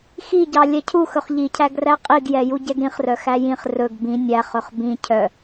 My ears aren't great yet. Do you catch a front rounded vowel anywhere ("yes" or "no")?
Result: yes